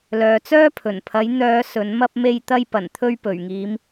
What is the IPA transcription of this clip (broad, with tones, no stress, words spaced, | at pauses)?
lœː˨t͡sœː˥pʰɵ˨˩npʰɐ˨˥j n̪œː˨˧ sɵ˨˥nmɐ˥p̚ me˧jt̪ɐ˧jpɐ˨˩nt̪ʰɵ˧ɥ pɵ˨˩ɥŋiː˨˧m